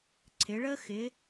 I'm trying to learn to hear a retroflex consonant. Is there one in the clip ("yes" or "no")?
yes